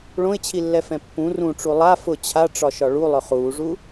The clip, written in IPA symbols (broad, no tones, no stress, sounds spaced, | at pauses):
ɭ õ ɪ̯ t͡ɕʰ i lː ɛ f ɛ̃ pː ũ r ũ ʈ͡ʂ u lˠ a f ʊ t͡ɕʰ a ʈ͡ʂ ɒ ʃ ɒ ɭ u lˠ ɵ χ uː ʐ u